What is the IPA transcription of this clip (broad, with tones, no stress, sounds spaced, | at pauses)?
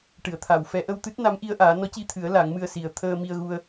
ʈ ɨ˨˩˨ ə̯ t̪ʰ a˨˩˨ w f ɛ˨˩˦ ʔ ə˧ w t̪ ɨ˦˥ t̚ n a˧˥ m ʔ i˧ ə̯ ʔ aː˨˩˦ n ɔ˧˥ c i˧ t̪ʰ ɨ˨˩˦ ə̯ l a˨˩˦ ŋ m ɨ˧ ə̯ s i˨˩ ə̯ t̪ʰ əː˧ m i˧ ə̯ ɣ u˧ ə̯